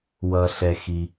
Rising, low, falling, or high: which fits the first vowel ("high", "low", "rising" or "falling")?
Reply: low